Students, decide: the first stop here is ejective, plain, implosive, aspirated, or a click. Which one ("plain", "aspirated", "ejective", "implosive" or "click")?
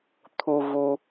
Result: aspirated